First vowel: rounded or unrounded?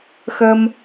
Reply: unrounded